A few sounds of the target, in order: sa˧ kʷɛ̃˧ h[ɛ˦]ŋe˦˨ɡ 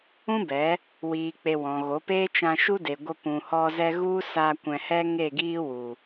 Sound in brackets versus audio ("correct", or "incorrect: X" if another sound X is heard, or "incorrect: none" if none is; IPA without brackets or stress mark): correct